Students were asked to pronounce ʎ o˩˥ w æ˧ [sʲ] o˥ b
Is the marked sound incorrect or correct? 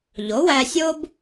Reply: correct